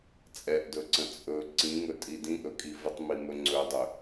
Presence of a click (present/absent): present